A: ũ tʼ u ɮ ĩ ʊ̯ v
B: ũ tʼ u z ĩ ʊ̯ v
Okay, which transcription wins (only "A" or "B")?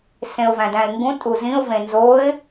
B